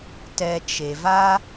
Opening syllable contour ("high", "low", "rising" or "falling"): low